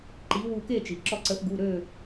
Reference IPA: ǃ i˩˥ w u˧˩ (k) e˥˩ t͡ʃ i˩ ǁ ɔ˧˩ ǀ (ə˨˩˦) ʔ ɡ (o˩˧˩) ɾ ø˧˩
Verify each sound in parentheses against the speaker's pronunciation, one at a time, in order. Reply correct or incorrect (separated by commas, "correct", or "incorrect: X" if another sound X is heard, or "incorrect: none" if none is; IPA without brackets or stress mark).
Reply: correct, correct, incorrect: u˩˧˩